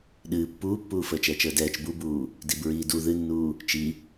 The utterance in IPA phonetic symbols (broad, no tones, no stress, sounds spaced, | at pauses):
ɗ ɨː pː uː pː uː f əː t͡ʃ ɛː t͡ʃ əː d ɛː t͡ʃ b u b uː | d i b ɹ iː d u ð ɨ nː uː | t͡ʃ i